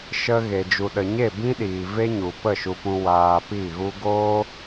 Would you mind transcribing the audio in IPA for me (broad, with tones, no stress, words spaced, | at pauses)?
ʃə˧ ɣe˨d͡ʒu˨ɗə˨ɲe˦˨ bĩ˦ɗiː˨ ve˦ɲu˨ pə˦˨ʃu˧pũ˧ waː˧pi˦˨ɣu˦ ɡoː˦